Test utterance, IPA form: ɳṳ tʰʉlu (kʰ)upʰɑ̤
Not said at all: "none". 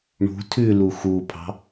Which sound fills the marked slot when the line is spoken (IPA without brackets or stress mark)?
x